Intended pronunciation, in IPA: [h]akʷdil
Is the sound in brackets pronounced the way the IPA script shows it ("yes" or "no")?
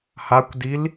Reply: yes